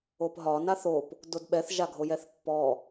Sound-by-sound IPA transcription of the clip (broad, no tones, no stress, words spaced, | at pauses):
opɦɒ naθop | dodɓɛθ ʒaɡʱojɛθpːɔ